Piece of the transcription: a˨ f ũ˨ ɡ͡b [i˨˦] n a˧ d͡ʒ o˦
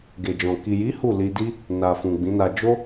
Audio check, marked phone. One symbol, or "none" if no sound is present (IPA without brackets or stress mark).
ĩ˨˦